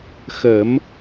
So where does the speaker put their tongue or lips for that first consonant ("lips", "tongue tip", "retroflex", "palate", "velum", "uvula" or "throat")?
velum